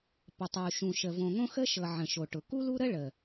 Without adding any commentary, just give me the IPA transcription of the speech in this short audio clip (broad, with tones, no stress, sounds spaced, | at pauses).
p ə˨ tˤ u˨ ʃ ũ˨ ʃ ə˨ v õ˨ ŋ õ˦ x ə˦ ʃ ɤ˨ ʕ ə̃˨ ʃ o˨ ʈ ʊ˨ k u˦ l u˦ ɾ ə˦ ɭ ə˨